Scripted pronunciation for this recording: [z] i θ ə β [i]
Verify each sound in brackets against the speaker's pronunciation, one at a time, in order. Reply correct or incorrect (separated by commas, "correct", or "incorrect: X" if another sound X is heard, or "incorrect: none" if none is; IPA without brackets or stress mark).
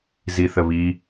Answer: correct, correct